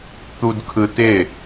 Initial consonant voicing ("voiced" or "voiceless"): voiceless